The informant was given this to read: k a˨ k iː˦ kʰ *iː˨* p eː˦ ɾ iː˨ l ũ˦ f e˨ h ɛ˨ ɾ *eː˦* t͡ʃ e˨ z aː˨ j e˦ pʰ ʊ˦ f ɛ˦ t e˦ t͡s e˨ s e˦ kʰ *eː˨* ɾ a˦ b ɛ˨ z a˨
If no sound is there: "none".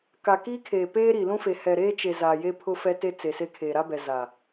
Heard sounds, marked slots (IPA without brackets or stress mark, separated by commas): eː˨, eː˦, eː˨